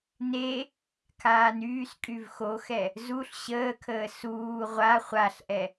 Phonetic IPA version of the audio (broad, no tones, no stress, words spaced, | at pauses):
ne | kʰaːnyːskʼyv xoxɛ | zuɬ ɕəːkʰəː suː ʁʷa χʷaɬʔɛ